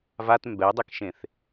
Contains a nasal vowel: yes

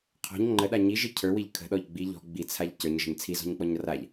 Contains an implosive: yes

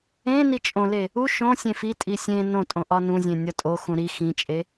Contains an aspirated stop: no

